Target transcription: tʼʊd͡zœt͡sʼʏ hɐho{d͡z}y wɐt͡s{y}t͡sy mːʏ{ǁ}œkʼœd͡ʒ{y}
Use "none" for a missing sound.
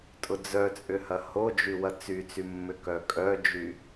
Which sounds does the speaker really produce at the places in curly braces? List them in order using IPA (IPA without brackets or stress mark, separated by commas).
d͡ʒ, y, k, y